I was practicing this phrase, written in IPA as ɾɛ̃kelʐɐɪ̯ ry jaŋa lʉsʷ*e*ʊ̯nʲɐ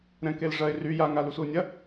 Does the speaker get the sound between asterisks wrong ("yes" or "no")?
yes